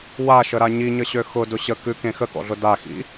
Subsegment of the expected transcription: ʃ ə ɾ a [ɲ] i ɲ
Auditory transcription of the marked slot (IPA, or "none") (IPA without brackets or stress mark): ɲ